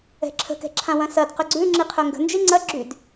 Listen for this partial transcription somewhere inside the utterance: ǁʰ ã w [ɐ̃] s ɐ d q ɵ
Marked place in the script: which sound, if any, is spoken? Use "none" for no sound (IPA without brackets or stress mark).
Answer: ɐ̃